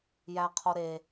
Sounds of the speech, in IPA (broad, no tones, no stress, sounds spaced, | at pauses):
j æ qʰ o ɾ e